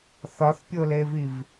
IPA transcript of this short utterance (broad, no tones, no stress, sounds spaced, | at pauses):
θ ɒ θ pʲ o l e v i v